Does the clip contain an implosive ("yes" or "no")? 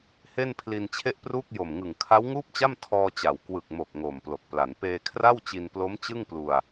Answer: no